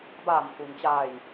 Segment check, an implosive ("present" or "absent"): absent